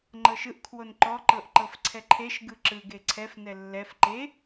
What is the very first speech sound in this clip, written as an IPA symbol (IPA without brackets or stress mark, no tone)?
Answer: ŋ͡ǃ